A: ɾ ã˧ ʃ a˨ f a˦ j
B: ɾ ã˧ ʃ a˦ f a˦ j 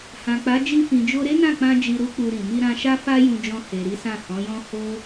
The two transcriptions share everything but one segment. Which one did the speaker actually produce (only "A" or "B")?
B